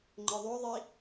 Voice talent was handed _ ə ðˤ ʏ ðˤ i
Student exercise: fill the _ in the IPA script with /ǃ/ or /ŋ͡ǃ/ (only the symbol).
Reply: ŋ͡ǃ